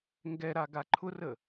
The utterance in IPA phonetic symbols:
ŋ ɡ ɛ ɾ a ɡ a ǃʰ ʊ r ə

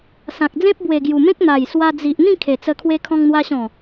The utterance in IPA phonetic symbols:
s ã˨ k̚ d͡z ẽ˦ p̚ b w e˨˩ ɡ j u˨˩ m ẽ˦ k̚ n̪ a˨˩ j s w a˧ d͡z i˨ ʔ n̪ ĩ˥˧ kʰ e˨˩ t͡s ə˧ kʰ w e˧ kʰ ɔ̃˧ ŋ n̪ w a˧ ɕ ɔ̃˨˩

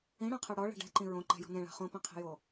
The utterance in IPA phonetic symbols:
ĩ ɽ ã qʰ ɛ ɽ ɔ ɭ ɛ̤ ɖ ɛ̤ ǃ ĩ ɹ õ ǃ ɛ̤ j ɔ̤ n ẽ ɭ a̤ χ õ p ĩ qʰ e̤ j o

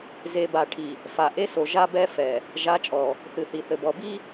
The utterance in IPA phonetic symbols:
z e˨ b a˨ ʈʰ i˨ | f a˨ ʔ e˦ s o˨ ʒ a˦ b ɛ˦ f ɛ˨ | ʒ a˨˦ t͡ʃʼ ɔ˨ | θ ɨ˨ θ i˨ θ ɘ˨ b ɔ˨ b i˦

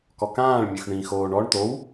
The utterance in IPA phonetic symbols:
k ɔ k ãː ɭ mʲ ø x ɳ ĩ x oː ɳ ɔ ɳ t̪ o w

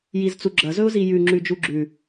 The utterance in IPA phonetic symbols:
j i z t͡s u ɡ͡ǁ ɐ z ɵ ʊ̯ z i j ʉ ŋ͡ǁ ʉ d͡ʒ u ɡ͡ǁ ʉ

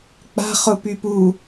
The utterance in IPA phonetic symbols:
k͡p a̤ χ ʊ p y p u

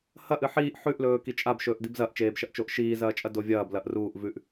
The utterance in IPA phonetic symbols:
h ɐ ʔ ɨ ħ iː ʔ ħ ʉ ʔ l ɵː k i t͡ʃʼ a b ʃ ɵː ʔ d i b z ɐ ʔ t͡ʃ eː b ʃ ɐ ʔ t͡ʃ o ʔ ʃ iː z ɐː t͡ʃʼ ɐ d o vʲ ɐː b l ɐ ʔ r uː ʔ v ʉ ʔ

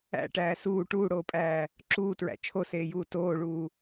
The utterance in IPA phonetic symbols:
æ̰ ʈ æː s uː ʈ uː ɽ oː pʼ æː | ǁ uː t ɹ æ̰ t͡ʃʰ o s eː j uː t oː ɭ uː

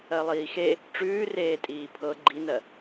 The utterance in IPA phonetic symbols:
ɜ lˠ iː x e | ʈ͡ʂ ʉː r eː tʼ iː pʰ ɤ ɡ͡ǃ i n ɜ

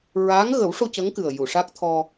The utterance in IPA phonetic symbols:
ɹ aː˧˥ ŋ ɣ ə˨˩˦ w ʂ o˧ c ə˧˥ ŋ k ɨ˨˩ ə̯ j u˨˩˨ ʂ a˦˥ k̚ t̪ʰ ɔ˧

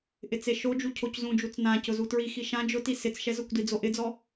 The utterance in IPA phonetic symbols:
ʔ ɪ t͡s e ʃ o d͡ʒ u cʰ o c z ũ d͡ʒ u t͡s n ã c ʊ z u t ɹ i x i ʃ ã d͡ʒ ʊ t i s ɪ t͡s ʃ ɛ z ʊ kʷ d i d͡z o ʔ ɪ d͡z ɔ

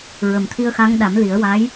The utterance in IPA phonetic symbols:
ɹ ə˨˩ m t̪ʰ i˧ ə̯ x a˧˥ ŋ ɗ a˨˩˦ m l i˨˩˦ ə̯ w a˧˥ j

